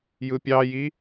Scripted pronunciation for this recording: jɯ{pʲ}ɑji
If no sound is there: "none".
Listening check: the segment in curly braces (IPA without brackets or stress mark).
pʲ